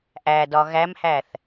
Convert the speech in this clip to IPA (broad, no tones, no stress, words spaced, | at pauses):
ʔædɒ ɣæmhæθ